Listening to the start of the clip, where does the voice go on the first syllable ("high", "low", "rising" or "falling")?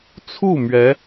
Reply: falling